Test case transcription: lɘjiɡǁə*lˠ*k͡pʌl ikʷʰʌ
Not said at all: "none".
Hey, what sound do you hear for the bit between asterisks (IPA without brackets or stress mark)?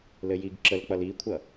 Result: l